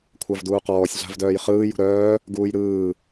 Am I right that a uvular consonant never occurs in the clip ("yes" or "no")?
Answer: no